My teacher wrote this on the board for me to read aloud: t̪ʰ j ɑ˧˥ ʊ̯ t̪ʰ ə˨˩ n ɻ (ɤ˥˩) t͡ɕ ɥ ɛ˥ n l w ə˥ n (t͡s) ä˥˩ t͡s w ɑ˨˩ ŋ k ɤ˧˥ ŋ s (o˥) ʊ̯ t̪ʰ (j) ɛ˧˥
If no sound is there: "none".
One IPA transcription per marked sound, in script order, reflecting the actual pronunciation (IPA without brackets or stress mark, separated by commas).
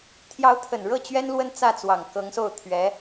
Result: ɤ˥˩, t͡s, o˥˩, ɥ